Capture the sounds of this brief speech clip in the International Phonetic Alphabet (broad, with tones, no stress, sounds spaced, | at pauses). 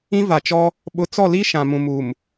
ĩ˦ v a˨ t͡ʃ ɔ˦ | ɓ ʊ˨˦ t͡s ɔ˦˨ l i˦ ʃ ã˨ m ũ˨ m u˨ m